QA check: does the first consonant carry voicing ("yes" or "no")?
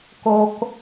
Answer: no